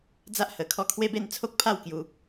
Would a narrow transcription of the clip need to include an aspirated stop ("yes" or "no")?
yes